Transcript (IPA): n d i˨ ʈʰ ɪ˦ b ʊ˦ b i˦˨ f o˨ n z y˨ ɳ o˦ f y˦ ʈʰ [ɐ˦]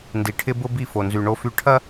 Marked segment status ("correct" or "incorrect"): correct